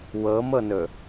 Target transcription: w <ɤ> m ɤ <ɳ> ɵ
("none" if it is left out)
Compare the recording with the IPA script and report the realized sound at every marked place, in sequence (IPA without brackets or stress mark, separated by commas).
ɤ, n